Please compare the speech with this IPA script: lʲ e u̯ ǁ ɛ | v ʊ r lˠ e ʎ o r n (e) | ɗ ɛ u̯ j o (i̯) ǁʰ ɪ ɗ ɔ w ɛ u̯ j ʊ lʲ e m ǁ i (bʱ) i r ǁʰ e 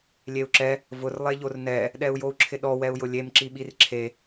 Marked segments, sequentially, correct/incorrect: incorrect: ɛ, incorrect: u̯, incorrect: ɓ

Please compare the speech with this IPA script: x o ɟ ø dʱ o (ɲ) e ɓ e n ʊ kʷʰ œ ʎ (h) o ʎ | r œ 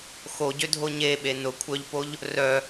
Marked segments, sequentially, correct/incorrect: correct, incorrect: p

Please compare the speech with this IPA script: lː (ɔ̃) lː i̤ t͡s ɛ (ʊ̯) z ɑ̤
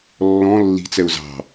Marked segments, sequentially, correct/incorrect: correct, correct

